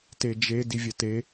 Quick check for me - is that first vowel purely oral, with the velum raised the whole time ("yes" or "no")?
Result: yes